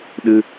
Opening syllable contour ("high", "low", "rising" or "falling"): high